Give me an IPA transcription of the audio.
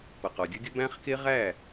p ʌ˨ q ɒ˨ dʲ o˦ dʲ ʌ˦ b æ̃˦ χ k e˦ ʁ æ˦˨

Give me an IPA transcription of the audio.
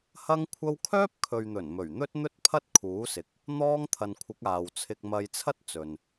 h ɐ˥ ŋ kʷʰ ɐ˥ w kʰ œː˥ p̚ kʰ ɵ˨ ɥ n̪ ɵ˨˩ n m ɵ˨˩ ɥ n̪ ɵ˥ t̚ n̪ ɵ˥ t̚ pʰ ɐ˥ t̚ kʰ uː˨˥ s ɪ˨ k̚ | n̪ ɔː˥ ŋ t̪ʰ ɐ˨ n kʷʰ ɪ˨˥ k̚ aː˨ w t͡sʰ ɪ˧ k̚ m ɐ˧ j t͡sʰ ɐ˥ t̚ t͡s ɵ˨ n

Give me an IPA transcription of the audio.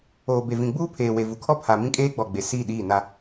oː˨ b e˨ v ĩ˨ ɡ͡b uː˦ pʰ eː˨ w e˨ v u˨ kʰ ɔ˦ pʰ a˨ m ĩ˦ kʼ eː˦ ɡ͡b ɔ˨ ɡ͡b e˨ s iː˦˨ ɗ iː˦˨ n a˦

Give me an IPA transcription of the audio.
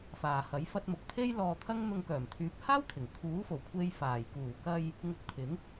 f aː˨ h ɐ˨˥ j f ɐ˧ t̚ m ʊ˨ k̚ t̪ʰ e˥ j l ɔː˧ t̪ʰ ɐ˥ ŋ n̪ ʊ˧ ŋ k œː˨˩ m t̪ʰ yː˨˥ p̚ h aː˥ w t̪ʰ ɪ˨˩ ŋ kʰ uː˨˥ f o˨˩ w kʷʰ e˧ j f aː˨˩ j k uː˨˩ k ɐ˧ j | ŋ ʊ˧ k̚ t̪ʰ ɪ˨˥ ŋ

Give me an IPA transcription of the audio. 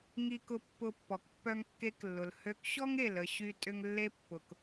ŋ i˧ k ʊ˧ pː ʊ˧ pː ɔ˩ k pː œ˧ ŋ kː e˧ k lː ʊ˩ l h ø˧ k ɕ ɔ˥ ŋ e˩ l ə˧ ɕ y˥ tʼ ʏ˥ ŋ lː e˥ pː ʊ˩ k

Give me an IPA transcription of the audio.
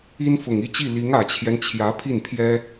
i˥ n f ʊ˨˩ ŋ i˥˧ t͡ɕ i˥˩ l i˧˥ ŋ ä˨˩ t͡ɕʰ j ɛ˦ n t͡ɕʰ j ä˧˥ pʰ i˥˩ n pʰ j ɛ˥

